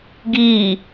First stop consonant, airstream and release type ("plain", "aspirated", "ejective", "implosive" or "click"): plain